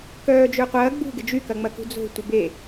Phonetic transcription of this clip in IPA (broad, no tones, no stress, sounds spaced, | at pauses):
k œː d͡ʒ ʏː qʷ ɐː ɡ͡b ṳ ɡ ɪ d͡ʒ y k ɐ ŋ͡m ɐ k ṳ d͡z o̤ tʷ ə b e